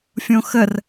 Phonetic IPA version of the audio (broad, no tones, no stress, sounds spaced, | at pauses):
fʲ õ x ə r